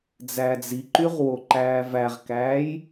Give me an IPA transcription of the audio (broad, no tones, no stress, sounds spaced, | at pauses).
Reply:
d͡z æ d͡z i ǃ y ʁ w o ǃ æː v æ ʁ k æː j